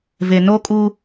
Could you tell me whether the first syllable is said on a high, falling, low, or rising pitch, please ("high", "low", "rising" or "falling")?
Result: low